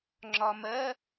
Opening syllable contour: low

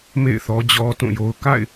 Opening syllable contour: falling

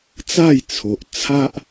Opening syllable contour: falling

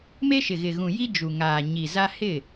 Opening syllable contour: high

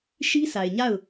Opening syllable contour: high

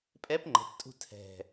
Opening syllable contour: rising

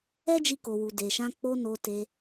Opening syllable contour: high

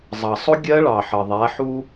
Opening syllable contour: low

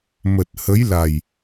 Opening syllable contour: low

